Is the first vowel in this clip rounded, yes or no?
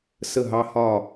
no